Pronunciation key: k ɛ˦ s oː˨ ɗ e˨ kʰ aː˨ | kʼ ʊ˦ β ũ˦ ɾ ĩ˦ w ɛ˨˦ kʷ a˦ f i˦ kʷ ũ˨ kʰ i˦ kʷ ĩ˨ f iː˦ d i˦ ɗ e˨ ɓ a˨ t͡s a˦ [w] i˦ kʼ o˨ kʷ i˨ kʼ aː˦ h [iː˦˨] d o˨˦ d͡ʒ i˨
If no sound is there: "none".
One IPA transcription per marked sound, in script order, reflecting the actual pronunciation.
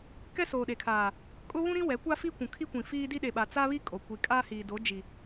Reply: β, iː˨

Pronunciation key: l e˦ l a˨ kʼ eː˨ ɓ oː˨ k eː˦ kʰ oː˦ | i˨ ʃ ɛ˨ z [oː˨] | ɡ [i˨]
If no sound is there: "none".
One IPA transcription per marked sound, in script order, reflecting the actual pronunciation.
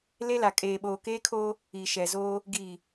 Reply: oː˦, iː˨

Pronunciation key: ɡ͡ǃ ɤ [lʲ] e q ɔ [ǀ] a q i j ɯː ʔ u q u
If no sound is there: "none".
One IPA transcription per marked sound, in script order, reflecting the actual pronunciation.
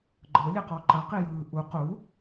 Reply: lʲ, ǃ

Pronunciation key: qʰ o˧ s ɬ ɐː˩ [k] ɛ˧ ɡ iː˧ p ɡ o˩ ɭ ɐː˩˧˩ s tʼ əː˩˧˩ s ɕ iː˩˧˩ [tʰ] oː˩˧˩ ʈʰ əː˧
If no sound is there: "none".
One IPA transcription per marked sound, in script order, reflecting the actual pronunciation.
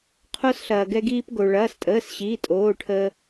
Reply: ɡ, tʼ

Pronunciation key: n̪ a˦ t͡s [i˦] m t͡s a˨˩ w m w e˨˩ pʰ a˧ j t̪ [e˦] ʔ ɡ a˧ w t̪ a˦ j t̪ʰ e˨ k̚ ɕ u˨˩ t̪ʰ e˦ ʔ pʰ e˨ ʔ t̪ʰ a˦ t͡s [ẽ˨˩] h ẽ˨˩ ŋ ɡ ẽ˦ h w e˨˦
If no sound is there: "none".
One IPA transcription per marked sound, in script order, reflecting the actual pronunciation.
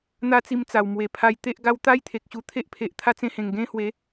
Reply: i˧, e˦, ẽ˧

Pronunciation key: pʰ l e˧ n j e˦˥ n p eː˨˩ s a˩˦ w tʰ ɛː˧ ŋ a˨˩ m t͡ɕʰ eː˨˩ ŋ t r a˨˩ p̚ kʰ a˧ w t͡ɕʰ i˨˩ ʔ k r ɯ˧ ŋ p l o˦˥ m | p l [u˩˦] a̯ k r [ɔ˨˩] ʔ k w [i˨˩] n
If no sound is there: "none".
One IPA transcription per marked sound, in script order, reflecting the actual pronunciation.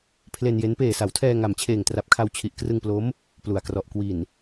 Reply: u˩˦, ɔ˨˩, i˨˩

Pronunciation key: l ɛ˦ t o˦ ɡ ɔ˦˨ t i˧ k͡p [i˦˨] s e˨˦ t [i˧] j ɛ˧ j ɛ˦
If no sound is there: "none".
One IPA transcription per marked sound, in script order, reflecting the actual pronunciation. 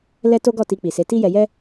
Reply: i˨, i˦

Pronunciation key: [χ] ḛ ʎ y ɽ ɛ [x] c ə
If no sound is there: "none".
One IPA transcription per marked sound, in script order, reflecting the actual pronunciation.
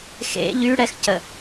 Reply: x, x

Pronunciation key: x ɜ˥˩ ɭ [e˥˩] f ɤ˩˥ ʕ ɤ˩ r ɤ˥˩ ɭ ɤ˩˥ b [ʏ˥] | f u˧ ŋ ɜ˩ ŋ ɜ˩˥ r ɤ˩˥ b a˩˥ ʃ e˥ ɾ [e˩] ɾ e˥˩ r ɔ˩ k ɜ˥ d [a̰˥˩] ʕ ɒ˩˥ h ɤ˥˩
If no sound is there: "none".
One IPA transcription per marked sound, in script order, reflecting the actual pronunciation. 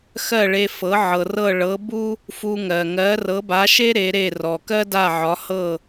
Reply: e˧, u˥, e˩˥, a˥˩

